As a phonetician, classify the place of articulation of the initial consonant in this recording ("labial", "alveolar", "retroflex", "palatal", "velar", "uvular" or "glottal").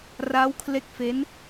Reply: alveolar